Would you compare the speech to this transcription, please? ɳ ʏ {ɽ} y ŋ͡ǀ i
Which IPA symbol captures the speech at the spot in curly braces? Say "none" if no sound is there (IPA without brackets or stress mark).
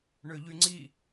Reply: ʎ